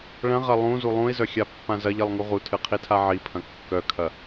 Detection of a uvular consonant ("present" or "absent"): present